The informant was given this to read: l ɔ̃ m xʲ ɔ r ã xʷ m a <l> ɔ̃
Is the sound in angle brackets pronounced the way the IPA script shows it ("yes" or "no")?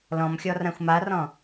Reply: no